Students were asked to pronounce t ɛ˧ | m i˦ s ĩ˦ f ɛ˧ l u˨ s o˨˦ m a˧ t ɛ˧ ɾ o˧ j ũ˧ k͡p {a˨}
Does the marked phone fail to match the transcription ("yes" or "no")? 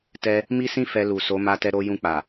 no